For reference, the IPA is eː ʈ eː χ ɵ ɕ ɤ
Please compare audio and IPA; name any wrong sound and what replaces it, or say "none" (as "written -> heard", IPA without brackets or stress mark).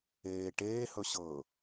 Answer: χ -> h